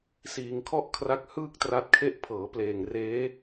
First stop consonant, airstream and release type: aspirated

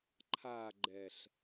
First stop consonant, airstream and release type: click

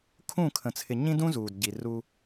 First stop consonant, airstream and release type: aspirated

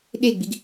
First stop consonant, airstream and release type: implosive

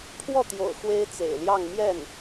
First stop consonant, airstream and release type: aspirated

